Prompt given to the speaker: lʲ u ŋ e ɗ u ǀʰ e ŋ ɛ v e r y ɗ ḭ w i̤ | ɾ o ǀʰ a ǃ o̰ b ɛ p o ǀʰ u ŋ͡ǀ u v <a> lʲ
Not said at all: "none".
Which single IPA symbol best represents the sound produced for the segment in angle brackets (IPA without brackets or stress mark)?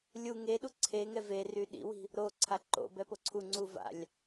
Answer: a̰